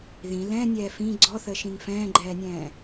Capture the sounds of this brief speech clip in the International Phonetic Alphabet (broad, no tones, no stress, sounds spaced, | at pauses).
ð ĩ l ɛ̃ nʲ ɛː f ĩ ɡ͡ǀ ɔ θ ə ʃ ĩ ŋ f ɛ̃ː ɡ͡ǃ ɛː nʲ ɛ̃ː